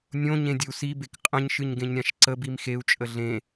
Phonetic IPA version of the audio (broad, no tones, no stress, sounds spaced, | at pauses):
nʲ õ ɲ ẽ dʲ ə u̯ s i b e k qʼ ə̃ ɲ ʃ ɨ ɲ ɡ ẽ ɲ ɾʲ ã ʃ ǀ ə b i m x e u̯ t͡ʃʼ ə ɮ ẽ